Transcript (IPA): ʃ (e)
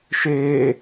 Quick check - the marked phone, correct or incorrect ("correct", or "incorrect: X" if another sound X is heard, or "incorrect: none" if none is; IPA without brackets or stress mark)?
correct